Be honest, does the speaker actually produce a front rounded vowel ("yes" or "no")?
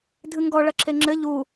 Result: no